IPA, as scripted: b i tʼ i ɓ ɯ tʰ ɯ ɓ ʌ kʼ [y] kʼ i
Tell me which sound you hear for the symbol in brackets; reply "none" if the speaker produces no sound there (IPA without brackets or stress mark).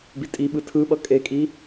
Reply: e